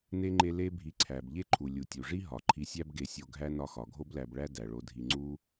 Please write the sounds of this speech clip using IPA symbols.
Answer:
ne˥ŋ͡ǃe˦ le˥ bʱi˨ǀʰæ˩b ʎe˥ǃʰu˩ lʲu˩tʲu˩ʐi˥ ɦɒ˩ǃʰi˨sʲæ˦bɡe˨ sʲo˨ ɡʱæ˥nɒ˦xɒ˩ ɡʱo˥blæ˨bɭæ˥ dæ˩ɭo˨dʱi˨ ŋ͡ǀu˥

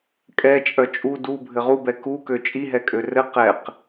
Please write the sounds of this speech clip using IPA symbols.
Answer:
kʼɛ t͡ʃʼœt͡ʃʼu du bʱɘʁubɛ kukø t͡ʃʼiɦɛ kʼørɘ qɛq

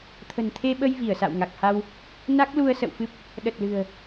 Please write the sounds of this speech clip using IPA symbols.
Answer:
t̪ʰə̤˨˩nt̪ʰe˧ɓə˧j vi˧˩ə̯sa̰˧˨w ŋa˨˩k̚ha˧w | na˦˥k̚ lu˧ə̯sə̰˧˨wfɨ˦˥p̚ | ɗə˨˩t̚lɨ̤˨˩ə̯

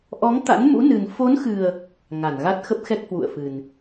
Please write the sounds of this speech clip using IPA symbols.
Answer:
ʔɔ˨˦ŋ t̪a̰˧˥nmṵ˧˥nɨ˨˩n fo˨˦nxɨ˨˩ə̯ | ŋa˧˩nɣa˦˥t̚ xə˦˥p̚xɛ˦˥k̚hwṵ˧˨ə̯fɨ˨˩n

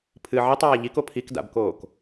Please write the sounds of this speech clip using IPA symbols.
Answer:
pʰɨ ʕitˤaː ʎiko pʰikda̰bkoːk

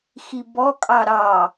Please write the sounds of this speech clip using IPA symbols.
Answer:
xibɔkʼɑ ɾɑ

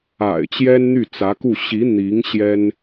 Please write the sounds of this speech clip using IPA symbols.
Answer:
a̰˨˩ɪ̯ t͡ɕjɛ˥nn̪y˥˩t͡sä˧˥ku˥˩ ɕi˧˥ n̪i˧˥ŋ ɕjɛ˥n

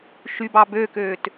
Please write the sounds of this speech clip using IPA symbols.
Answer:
ʃybɑ bøkøːt

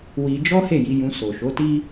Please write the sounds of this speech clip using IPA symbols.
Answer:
wi˧ d͡ʒɔ˦he˦˨ ji˧jũ˧ so˨ʃo˨˦ti˦

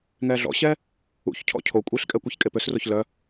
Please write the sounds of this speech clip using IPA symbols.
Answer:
ŋɛːɮɔ̰ɕɛː | ṵçcʰɔ̰ cʰo kʷʼiɬkʼɛ kʷeçkʼepøsroç lœ

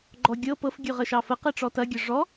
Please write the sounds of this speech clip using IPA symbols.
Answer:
ɡ͡ǃɔ ɡʲɤ pɤf ɡʲʉʁəʃɑfə qeʈ͡ʂɔtɐ ɡʲəʐɔ

